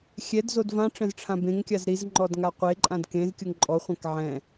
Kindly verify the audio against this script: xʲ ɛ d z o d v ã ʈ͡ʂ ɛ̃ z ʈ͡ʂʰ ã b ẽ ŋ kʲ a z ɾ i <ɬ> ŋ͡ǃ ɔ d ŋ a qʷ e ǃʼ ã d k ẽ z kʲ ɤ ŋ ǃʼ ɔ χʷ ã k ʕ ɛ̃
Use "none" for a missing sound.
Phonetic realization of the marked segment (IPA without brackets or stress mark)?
z